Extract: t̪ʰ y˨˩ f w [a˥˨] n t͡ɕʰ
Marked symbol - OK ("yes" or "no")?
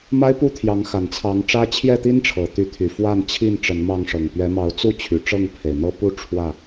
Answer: yes